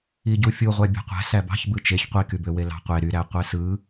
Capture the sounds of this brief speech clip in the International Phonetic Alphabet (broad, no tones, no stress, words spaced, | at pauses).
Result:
iɟufʲuʁʷæ bʲæ̤qʷæ̤ sæbɑ̤ç bɯt͡ʃeç qʷikybøwe lɑ̤qʷe ɾyɾæ qʷesɯ